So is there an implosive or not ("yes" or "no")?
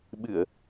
yes